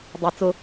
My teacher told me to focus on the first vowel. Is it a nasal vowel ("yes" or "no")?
no